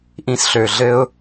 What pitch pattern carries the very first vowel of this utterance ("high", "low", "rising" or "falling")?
falling